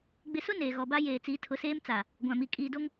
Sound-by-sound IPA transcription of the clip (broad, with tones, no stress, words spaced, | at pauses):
ɡ͡bɪ˨sʊ˦ neː˨ɣɔ˨ba˦jeː˨ t͡siː˨˦tʰʊ˨˦seː˦m t͡sa˨ | ɡʷã˨mi˨ kʼiː˨do˦ŋ